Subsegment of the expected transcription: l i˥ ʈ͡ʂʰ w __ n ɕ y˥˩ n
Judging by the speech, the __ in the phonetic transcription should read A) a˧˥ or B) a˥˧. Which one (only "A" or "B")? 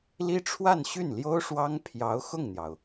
B